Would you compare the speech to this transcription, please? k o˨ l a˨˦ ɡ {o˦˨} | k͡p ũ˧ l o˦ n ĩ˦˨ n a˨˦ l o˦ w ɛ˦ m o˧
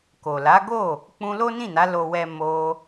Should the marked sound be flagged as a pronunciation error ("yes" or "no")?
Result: no